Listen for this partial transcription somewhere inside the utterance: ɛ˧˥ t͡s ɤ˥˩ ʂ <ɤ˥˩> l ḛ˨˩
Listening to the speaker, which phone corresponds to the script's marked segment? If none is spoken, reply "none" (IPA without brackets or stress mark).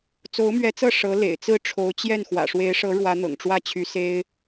ɤ˧˥